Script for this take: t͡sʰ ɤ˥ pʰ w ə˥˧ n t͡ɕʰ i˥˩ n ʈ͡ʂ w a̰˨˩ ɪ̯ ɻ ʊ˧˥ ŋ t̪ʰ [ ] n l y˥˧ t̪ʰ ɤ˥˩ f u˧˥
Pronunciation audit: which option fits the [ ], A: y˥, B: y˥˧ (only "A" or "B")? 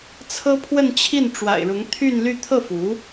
B